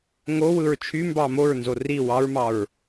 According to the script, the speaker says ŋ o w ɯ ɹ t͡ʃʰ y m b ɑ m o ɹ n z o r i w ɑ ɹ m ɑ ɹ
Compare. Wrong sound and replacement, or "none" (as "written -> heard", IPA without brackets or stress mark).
none